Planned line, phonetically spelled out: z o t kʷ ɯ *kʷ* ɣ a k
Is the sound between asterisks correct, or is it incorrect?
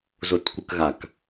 incorrect